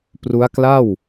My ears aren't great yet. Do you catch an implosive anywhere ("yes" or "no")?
no